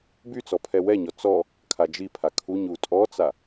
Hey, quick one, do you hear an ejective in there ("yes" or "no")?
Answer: yes